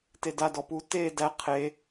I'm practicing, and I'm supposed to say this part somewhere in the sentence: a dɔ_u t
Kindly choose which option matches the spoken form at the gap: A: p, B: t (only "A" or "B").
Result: A